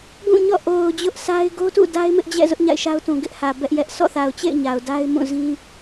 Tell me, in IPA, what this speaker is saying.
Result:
ɡ ũ˦˨ ɲ ɔ̰˦˨ ʔ o˨ ʊ̯ d͡ʑ ʊ˦ ʔ s a˦ ɪ̯ ɡ o˦ t ṵ˦˨ d a˦ ɪ̯ m ɪ˦ ʔ d͡ʑ ɛ̰˦˨ z ʊ˦ ʔ ɲ a̰˦˨ ɪ̯ ʃ a˦ ʊ̯ t ũ˨ ɡ ɪ˦ ʔ h ä˨ b ɛ˦ ʔ j ɛ˦ ʔ s ɔ̰˦˨ θ a˨ ʊ̯ t͡ɕ ḛ˦˨ ɪ̯ ɲ a˨ ʊ̯ d a˦ ɪ̯ m ũ˦˨ z ĩ˦

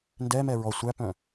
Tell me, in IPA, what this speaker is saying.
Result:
n d ɛ m ɛ ɹ ɔ sʷ æ p œ̃

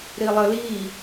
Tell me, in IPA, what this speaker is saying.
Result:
ɾ i lˠ ə l i

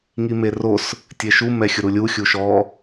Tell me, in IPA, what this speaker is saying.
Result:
ŋ i m e r o s | tʲ e ʃ u m ɛ xʲ ʊ ɾ u lʲ u xʲ u ʃ ɔ

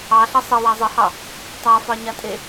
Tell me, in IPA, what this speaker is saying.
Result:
ɑ ɬ ʌ sˤ ʌ w a zˤ ə h ɑ | tˤ a f ɑ ɲ a tʼ e

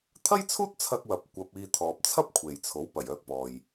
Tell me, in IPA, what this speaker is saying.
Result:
t̪ʰ ɐ˥ j t͡sʰ uː˥ t̚ t͡sʰ ɐ˧ k̚ w ɐ˨ p̚ kʷ ɐ˧ p̚ iː˧ t̪ʰ ɔː˨ p̚ t͡sʰ ɐ˥ p̚ kʷʰ e˨ j t͡sʰ o˨˥ w p ɐ˨˩ j œː˧ k̚ p ɔː˨ j

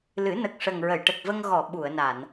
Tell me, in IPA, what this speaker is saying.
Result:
l ɨ˨˩˦ n ə˨˩ k̚ ʂ ə˨˩ ŋ ɹ ə˨˩˨ j ʈ ə˨˩ k̚ v ə˧ ŋ ɣ ɔ˨˩˨ ɓ u˨˩˨ ə̯ n a˨˩˨ n

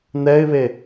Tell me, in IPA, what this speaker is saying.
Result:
n̪ ɛ ɪ̯ β e

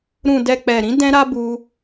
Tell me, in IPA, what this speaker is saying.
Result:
ɾ ũ˨ d ɛ˨ k͡p ɛ˨ ɾ ĩ˨˦ d ɛ̃˦ ɾ a˦ b u˧

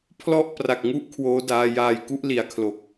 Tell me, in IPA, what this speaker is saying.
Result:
pʰ l ɔ˥˩ ʔ p r a˨˩ k̚ ŋ u˥˩ ʔ kʰ w oː˦˥ d aː˧ j aː˨˩ j k u˦˥ ʔ l i˨˩ a̯ kʰ l o˨˩ k̚

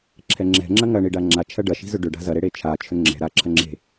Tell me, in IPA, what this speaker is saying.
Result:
ǁʰ ɛ ŋ͡ǁ ɛ̤ ŋ͡ǁ ɐ ŋ ɐ ɳ i ɖ a ŋ͡ǁ a t͡ʃʰ ɐ ɖ ɐ ʃ i̤ z ʏ ɖ ʏ ɖ a̤ z ɐ ɾ e ɽ e t͡ʃʰ a t͡ʃʰ ʏ ŋ͡ǁ ɛ̤ ɾ a ǁʰ ɐ ŋ͡ǁ e̤

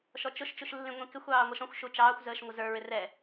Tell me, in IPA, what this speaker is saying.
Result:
ʃ ɔ t͡ʃ ʊ ʃ t͡ʃ u ʃ lː ĩ ŋʷ ĩ k ɪ xʷ ɑː ŋʷ ʌ ʃ ɔ̃ xʷ ʃ u t͡ʃ ɑː xʷ z əː ʃ ŋʷ ə z ə˞ ɹ ɪ r ɛ

